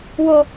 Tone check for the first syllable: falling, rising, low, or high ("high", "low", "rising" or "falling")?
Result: high